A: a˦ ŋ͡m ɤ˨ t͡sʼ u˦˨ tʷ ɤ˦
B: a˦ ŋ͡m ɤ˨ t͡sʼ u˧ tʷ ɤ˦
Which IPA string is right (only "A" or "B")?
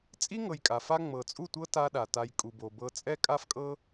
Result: A